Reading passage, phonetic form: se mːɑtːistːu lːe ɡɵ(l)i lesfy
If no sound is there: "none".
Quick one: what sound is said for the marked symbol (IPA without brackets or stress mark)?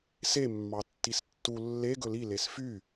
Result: l